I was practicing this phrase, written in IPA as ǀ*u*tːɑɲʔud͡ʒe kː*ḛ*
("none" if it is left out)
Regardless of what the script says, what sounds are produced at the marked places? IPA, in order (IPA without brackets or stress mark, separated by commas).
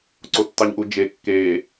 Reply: o, e